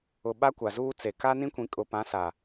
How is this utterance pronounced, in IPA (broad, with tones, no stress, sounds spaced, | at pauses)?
ʊ˨ ɓ a˦ kʷ a˨ z uː˦ t͡s e˨ k a˦ n ĩ˦ kʷ ĩ˨ kʼ ʊ˨ p ã˨˦ s a˨